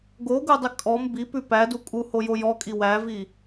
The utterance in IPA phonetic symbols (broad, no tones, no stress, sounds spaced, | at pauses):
ɡ o ɡ u dˤ ɪ kʼ ɔ m b i p ʉ p æ d u kʼ u h o j o j ɔ kʼ i w æ v i